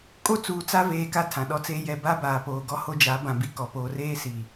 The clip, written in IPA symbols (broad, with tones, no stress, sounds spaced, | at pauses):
kʼ o˦ t͡s uː˨ t͡s a˦ v eː˨ k a˦ tʰ ã˨ ɗ ɔ˦ t͡s e˦ j ɛ˨ b a˦ b aː˨ p oː˨ ɡ ɔ˦ h o˦ d͡ʒ a˨˦ b ã˨ b i˨ k ɔ˨ p oː˨ r eː˦ s i˨